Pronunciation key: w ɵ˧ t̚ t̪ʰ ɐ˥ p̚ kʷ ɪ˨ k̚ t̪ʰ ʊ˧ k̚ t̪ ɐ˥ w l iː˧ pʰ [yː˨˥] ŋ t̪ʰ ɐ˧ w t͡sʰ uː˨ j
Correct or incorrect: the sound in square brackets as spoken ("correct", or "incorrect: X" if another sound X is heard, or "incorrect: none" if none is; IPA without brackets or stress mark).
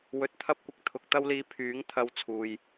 correct